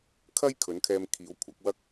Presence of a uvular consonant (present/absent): absent